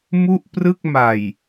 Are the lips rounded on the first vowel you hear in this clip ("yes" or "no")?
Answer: yes